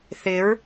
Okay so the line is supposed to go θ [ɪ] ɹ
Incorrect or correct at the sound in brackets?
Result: correct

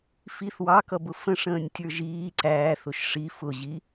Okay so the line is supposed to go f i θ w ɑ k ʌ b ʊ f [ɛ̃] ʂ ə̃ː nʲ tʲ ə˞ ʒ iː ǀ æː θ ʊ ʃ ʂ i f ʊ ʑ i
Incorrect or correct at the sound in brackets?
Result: incorrect: ə̃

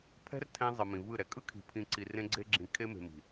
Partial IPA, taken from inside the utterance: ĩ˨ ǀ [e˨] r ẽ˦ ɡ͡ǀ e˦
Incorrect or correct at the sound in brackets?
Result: incorrect: i˨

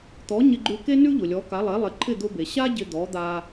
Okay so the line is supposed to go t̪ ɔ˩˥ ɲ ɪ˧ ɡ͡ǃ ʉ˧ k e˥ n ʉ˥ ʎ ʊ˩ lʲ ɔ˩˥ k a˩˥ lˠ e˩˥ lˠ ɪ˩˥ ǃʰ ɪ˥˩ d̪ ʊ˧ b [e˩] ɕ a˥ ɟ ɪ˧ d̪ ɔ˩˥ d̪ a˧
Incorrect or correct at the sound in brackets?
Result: correct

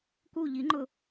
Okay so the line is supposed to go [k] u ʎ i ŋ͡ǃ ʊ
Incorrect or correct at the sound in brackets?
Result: correct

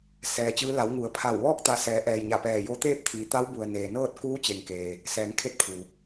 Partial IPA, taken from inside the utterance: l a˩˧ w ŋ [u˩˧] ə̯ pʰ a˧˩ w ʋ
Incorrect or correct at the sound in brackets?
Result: correct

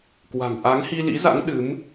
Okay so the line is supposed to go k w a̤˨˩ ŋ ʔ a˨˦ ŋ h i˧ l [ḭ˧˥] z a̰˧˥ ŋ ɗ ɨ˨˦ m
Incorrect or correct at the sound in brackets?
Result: correct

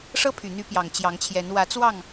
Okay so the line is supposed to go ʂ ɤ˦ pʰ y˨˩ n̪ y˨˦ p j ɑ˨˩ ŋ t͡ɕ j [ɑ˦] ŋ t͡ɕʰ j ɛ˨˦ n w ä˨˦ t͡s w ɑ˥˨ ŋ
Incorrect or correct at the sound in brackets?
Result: incorrect: ɑ˨˦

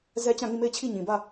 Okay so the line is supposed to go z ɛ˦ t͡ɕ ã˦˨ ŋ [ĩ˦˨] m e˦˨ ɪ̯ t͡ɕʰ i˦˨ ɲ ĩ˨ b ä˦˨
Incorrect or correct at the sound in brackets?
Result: correct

